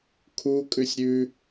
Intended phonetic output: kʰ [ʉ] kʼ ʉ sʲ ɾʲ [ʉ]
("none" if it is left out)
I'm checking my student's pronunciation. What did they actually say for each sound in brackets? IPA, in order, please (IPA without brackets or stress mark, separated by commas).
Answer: u, ʉ